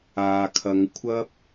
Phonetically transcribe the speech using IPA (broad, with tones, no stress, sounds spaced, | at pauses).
aː˨ kʰ ɐ˨˧ ŋ kʷʰ ɐ˥ p̚